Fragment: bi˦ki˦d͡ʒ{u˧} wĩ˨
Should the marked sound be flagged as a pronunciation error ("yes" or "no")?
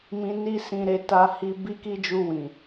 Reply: no